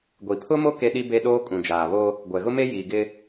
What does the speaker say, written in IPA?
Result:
ɡʷ i˨ pʰ ʊ˦ m o˦ k e˦ ɗ i˦ b e˦ ɗ oː˦ kʼ ũ˨ d͡ʒ aː˨ β o˦ | ɡʷ ɛ˨ ɣ ʊ˦ m e˦ j iː˨ ɡ ɪ˦

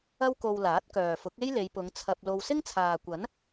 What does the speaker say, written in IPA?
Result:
ɐ˥ w k o˧ w l aː˨˥ t̚ k œː˨ f ʊ˨˥ k̚ e˥ j l e˨˧ j p ʊ˨˧ ŋ t͡sʰ ɐ˧ p̚ l o˧ w s ɪ˥ ŋ t͡sʰ aː˨ kʷ ɐ˨˥ n

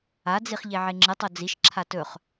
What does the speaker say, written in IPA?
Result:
a d͡z i χ ʎ e ʕ e ŋ͡ǁ ɨ tˤ o d͡z i ʃ ǁʰ a t ɵ χ

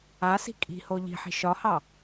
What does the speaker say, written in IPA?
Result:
a s i̤ kʼ i̤ h o ʎ i̤ ħ i̤ ʃ ɒ h ɑ

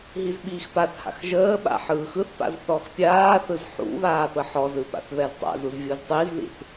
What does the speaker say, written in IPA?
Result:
ɦ i z ɓ iː x p a θ h a̰ x ʒ əː ɓ a̰ ħ ɯː x ɯ θ p a̰ z θ ɔ x pʲ aː θ ɯ z ħ ṵ β aː p ə ħ ɔ z ɯ p a̰ θ β ɛ z tˤ a̰ z u z vʲ u z tˤ i z ð ḭ θ

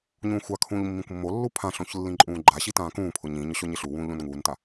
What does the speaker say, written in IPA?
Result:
ɲ ũː xʷ a kʰ ũː ʎ mː ĩ kʷ mː o lː u pʰ ã ɬ õ ç lː ĩ ǃʼ ũː ɡ͡ǃ a ɕ i t ãː k ũː pʰ ʊ ɲ ĩ ɲ ʊ ɕ o ɲ ɪ ɬ u w ũː ʎ õ n ŋ uː n t a

